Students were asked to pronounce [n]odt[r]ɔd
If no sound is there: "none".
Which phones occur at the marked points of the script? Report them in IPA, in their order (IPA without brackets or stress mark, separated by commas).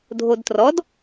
dʱ, r